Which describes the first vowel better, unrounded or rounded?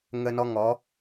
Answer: unrounded